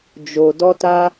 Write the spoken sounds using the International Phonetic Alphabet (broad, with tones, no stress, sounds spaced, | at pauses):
d͡ʒ o˨ d ɔ˦ t a˦